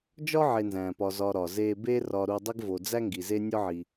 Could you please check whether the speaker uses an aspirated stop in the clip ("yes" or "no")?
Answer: no